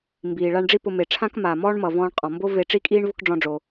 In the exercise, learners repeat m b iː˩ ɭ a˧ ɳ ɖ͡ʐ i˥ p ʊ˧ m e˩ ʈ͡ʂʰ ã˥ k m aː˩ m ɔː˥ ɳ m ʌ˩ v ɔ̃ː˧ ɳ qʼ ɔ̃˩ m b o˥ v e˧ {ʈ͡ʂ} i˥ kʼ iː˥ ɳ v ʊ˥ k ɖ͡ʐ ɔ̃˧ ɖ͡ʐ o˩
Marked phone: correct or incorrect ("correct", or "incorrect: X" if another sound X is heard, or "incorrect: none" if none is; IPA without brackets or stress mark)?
correct